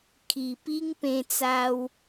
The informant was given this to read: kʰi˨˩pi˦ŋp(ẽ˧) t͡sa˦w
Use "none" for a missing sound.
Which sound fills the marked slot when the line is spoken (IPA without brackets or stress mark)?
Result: ẽ˧